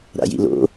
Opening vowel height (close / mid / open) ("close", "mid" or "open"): open